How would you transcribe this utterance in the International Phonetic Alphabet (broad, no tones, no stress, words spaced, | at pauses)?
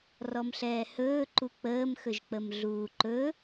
rɔmɬɛːhɵː ǃuk͡pəːm xɵʒk͡pəmɮuːǃɵ